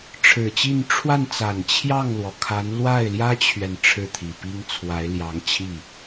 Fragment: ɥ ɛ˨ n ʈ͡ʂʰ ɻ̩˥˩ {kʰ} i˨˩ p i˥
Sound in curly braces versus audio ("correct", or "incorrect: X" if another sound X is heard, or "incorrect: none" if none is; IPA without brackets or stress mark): incorrect: t̪ʰ